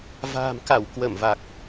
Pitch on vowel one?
low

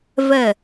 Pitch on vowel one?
falling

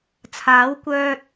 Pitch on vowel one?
rising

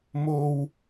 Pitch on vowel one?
low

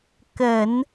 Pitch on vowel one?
low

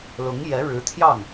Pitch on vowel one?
rising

